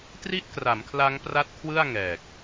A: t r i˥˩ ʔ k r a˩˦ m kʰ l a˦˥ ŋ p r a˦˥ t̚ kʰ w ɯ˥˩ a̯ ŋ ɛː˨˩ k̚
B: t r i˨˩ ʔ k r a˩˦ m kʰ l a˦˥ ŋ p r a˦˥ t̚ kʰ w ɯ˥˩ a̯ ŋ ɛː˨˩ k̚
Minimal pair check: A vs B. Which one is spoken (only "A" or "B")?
A